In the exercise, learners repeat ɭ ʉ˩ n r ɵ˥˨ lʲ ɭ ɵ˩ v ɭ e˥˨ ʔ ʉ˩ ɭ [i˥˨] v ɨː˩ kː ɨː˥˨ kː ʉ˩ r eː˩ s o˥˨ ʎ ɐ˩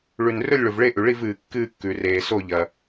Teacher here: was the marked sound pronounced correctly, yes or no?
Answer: yes